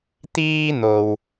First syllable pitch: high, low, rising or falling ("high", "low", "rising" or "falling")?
high